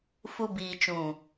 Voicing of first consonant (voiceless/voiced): voiceless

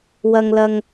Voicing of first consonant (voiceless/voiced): voiced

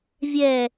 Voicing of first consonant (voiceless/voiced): voiced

